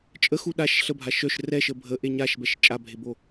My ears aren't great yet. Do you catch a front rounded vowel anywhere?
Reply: yes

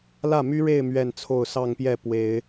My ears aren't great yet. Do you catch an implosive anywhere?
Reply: no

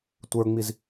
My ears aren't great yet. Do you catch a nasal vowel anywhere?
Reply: no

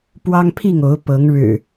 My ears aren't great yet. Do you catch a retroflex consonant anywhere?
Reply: yes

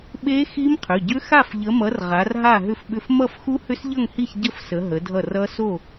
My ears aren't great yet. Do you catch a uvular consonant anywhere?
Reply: yes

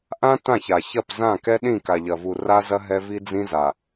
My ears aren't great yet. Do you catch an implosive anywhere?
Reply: yes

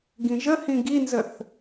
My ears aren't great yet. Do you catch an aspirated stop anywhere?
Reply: no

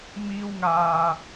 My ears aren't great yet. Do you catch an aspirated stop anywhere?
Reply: no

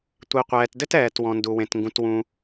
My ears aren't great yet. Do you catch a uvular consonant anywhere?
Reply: yes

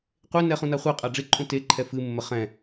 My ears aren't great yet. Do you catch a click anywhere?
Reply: yes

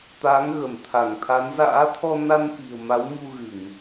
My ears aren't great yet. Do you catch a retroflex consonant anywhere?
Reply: no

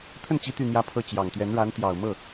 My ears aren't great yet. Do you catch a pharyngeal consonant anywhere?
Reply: no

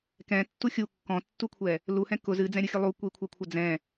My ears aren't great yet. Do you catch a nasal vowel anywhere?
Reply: yes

